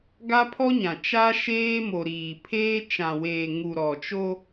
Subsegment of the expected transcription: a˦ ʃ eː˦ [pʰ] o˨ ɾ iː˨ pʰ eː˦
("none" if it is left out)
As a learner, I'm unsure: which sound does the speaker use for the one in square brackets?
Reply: m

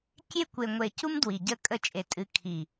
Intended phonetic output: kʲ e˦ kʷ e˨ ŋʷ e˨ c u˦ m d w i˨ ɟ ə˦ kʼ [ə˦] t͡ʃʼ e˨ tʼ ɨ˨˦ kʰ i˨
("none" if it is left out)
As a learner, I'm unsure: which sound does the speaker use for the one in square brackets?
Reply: ə˦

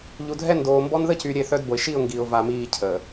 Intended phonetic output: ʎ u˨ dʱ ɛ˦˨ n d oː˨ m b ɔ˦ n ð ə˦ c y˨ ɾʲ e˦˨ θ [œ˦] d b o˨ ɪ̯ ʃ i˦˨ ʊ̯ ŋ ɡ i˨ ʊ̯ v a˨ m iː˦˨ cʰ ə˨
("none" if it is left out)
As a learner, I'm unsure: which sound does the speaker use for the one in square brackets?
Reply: œ˦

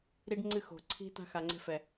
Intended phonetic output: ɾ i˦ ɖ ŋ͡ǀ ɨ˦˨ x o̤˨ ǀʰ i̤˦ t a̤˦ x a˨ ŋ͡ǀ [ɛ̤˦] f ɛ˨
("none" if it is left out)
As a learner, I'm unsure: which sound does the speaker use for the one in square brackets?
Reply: ɛ̤˦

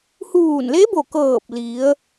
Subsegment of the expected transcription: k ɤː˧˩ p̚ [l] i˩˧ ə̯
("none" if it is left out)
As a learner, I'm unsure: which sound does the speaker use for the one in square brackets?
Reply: l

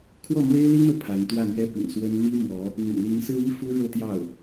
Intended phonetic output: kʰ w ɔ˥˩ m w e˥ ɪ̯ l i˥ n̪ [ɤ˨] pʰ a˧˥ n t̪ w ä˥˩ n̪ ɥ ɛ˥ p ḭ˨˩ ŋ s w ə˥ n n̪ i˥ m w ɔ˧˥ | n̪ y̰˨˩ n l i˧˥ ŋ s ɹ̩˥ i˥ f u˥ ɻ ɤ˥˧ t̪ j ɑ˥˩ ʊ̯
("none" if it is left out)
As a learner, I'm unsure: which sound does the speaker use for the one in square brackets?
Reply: ɤ˨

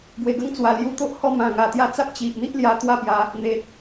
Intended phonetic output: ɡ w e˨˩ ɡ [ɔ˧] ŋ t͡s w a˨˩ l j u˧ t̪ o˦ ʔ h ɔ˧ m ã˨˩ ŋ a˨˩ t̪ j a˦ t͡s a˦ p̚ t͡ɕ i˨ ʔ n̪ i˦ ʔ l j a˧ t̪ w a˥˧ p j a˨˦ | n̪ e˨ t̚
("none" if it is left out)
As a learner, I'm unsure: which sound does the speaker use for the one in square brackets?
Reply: ə˧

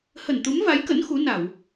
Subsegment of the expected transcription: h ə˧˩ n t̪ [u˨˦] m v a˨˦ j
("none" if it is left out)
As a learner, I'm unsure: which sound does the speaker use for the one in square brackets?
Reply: u˨˦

